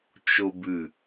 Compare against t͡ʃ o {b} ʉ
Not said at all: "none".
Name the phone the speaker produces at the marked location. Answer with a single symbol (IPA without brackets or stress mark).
b